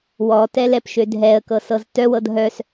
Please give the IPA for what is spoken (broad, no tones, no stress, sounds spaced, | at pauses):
w ɔ t ɛ l ɛ p ʃ ø dʱ ɛ ə̯ k ɤ s ɤ z t œ w ɤ d ɦ œ s